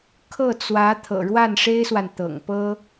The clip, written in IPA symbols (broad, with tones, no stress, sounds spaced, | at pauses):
kʰ ɤ˥˩ t͡s w ä˧˥ t̪ʰ ɤ̰˨˩ ɻ w a˥˩ n ʂ e˥ ɪ̯ s w a˨ n t̪ ɤ̰˨˩ ŋ p ɤ˥